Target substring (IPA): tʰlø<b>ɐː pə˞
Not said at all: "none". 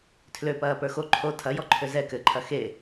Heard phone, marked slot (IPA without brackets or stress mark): p